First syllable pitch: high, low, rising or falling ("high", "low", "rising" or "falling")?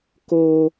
high